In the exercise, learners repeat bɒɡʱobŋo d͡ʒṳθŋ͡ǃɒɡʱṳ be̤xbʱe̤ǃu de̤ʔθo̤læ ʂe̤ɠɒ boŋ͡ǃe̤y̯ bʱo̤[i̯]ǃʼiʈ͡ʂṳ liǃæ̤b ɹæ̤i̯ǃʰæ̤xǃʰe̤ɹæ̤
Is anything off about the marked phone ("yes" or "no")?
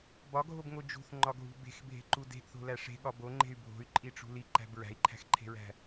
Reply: yes